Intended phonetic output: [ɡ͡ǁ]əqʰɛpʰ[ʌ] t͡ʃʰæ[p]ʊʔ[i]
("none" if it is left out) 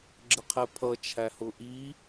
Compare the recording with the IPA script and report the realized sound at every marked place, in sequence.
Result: ɡ͡ǁ, ʌ, h, i

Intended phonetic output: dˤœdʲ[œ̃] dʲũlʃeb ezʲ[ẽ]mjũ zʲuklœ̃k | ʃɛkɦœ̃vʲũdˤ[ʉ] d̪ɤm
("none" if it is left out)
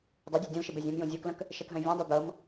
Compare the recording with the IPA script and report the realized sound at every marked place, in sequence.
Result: œ, ẽ, u

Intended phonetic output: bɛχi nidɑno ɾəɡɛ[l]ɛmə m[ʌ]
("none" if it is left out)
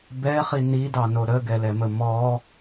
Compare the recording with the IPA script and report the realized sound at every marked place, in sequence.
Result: l, ɔ

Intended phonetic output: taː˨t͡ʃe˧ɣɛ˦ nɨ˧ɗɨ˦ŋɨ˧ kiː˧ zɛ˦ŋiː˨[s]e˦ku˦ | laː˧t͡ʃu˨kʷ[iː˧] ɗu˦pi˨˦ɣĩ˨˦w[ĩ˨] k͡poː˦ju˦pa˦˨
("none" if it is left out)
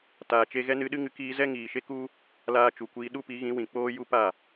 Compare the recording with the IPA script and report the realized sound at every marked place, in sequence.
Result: ʃ, iː˧, ĩ˨

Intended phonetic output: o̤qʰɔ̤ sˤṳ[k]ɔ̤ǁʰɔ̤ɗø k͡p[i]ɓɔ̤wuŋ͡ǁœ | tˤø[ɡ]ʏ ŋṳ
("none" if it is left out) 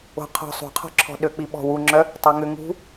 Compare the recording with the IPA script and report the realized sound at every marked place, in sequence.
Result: qʰ, i, ŋ

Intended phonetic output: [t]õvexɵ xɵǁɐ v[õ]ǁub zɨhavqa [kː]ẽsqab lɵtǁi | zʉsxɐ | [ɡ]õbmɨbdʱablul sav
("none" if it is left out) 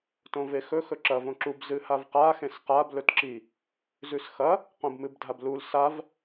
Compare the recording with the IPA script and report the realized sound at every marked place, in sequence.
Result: t, õ, x, q

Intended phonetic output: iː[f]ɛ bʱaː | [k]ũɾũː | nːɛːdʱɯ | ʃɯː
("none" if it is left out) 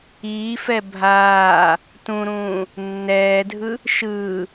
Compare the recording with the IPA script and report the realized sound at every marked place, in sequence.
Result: f, t

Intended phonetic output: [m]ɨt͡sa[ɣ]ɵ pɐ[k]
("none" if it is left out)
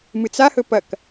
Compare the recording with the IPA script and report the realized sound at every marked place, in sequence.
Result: m, h, k

